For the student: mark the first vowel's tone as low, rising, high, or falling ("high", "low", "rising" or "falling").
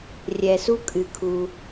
low